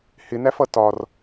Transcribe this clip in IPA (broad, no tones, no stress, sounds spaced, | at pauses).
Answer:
h ɪ n æ f ʌ t ɒ r